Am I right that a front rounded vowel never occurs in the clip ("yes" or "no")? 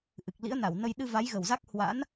yes